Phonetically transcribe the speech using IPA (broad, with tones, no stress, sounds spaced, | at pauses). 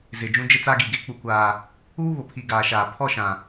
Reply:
z ɪ˨ d͡ʒ ũ˦ d͡ʒ ɪ˦ t͡s a˦ ɡ i˨ ɡ e˦ k͡p u˨ kʷ aː˨ | uː˦ β ʊ˨ pʰ i˨ ɡ aː˨ ʃ aː˨ pʰ ɔ˦˨ ʃ ã˨